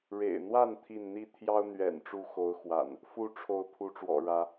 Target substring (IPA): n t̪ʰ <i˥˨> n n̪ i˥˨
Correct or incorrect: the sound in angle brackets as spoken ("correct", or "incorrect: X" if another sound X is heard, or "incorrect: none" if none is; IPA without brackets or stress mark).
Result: correct